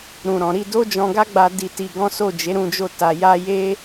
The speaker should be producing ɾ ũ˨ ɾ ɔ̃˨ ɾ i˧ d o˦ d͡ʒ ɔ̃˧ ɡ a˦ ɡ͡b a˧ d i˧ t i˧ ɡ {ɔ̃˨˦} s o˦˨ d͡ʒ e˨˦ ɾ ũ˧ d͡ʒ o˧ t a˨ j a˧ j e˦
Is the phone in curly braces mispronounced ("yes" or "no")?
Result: yes